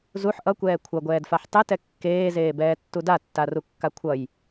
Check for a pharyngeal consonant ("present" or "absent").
present